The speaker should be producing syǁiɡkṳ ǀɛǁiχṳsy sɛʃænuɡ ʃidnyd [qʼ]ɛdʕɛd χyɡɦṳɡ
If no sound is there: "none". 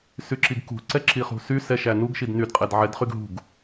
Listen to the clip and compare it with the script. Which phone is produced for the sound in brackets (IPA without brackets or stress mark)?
qʼ